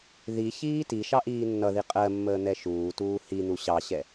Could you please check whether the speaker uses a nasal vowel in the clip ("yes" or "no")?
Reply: no